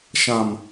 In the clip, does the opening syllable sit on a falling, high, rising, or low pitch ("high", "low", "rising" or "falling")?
low